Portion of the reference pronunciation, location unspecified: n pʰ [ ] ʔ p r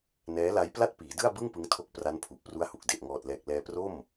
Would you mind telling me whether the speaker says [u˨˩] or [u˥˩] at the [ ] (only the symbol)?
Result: u˨˩